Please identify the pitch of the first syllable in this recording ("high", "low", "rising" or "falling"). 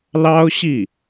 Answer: high